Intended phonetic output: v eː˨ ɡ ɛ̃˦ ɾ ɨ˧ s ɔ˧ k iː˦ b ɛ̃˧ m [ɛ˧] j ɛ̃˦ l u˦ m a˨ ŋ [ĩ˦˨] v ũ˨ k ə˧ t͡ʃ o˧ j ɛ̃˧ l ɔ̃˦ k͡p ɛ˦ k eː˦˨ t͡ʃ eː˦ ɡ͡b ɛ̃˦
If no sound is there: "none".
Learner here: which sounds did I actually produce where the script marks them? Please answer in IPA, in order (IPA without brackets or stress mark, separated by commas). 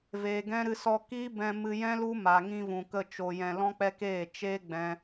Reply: ɨ˧, ĩ˧